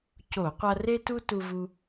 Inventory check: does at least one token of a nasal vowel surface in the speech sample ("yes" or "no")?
no